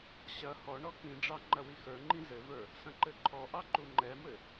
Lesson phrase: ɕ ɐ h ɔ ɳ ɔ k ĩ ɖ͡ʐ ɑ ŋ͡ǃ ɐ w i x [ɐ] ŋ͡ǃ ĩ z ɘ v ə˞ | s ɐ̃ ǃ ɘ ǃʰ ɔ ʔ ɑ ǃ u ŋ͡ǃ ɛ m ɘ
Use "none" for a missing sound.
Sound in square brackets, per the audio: ə˞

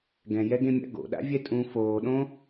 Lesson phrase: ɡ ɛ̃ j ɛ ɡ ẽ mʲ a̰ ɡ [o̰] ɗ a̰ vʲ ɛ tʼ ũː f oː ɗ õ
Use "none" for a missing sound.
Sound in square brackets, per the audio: o̰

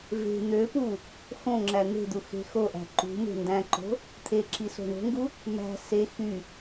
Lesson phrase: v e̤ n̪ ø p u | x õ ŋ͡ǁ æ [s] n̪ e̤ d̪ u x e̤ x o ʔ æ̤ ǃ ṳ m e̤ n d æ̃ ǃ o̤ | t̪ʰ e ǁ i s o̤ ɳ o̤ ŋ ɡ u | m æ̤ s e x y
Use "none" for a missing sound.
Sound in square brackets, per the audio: none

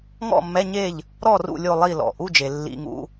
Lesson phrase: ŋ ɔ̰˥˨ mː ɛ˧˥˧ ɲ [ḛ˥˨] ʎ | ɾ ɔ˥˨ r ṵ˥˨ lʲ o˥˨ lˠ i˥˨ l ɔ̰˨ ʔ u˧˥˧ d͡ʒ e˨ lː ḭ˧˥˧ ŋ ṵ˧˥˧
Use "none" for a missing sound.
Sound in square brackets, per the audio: e˥˨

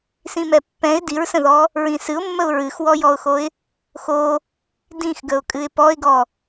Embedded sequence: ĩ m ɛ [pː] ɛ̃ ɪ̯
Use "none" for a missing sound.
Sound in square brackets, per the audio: pː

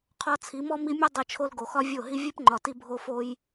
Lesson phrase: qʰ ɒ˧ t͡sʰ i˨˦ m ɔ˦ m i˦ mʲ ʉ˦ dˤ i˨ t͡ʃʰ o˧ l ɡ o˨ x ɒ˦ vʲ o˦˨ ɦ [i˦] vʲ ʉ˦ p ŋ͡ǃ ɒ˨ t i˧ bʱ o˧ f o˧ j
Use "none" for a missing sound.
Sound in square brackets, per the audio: i˦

